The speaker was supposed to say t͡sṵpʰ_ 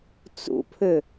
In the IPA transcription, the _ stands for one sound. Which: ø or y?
ø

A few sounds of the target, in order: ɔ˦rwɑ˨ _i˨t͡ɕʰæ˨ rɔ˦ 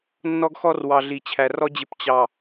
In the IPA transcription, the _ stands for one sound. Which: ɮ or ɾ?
ɮ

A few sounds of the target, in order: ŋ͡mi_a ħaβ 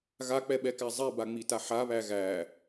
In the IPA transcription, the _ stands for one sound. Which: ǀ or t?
t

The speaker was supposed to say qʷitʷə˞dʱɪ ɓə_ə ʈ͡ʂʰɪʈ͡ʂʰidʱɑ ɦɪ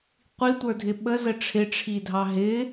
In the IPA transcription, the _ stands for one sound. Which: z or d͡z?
z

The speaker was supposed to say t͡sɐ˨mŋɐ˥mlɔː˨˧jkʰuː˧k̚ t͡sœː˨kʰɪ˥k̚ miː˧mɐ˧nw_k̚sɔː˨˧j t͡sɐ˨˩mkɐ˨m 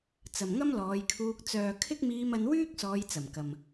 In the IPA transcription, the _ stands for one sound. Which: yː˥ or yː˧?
yː˥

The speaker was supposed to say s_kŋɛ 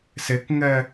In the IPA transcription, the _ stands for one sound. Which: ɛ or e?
e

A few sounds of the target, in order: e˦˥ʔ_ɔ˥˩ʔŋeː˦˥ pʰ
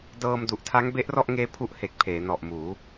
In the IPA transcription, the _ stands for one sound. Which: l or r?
r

